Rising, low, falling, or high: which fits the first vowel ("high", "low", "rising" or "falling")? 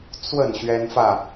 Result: falling